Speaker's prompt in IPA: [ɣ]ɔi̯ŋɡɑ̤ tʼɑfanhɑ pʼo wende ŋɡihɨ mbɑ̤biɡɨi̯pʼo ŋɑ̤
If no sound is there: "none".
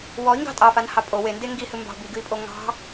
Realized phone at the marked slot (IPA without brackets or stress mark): w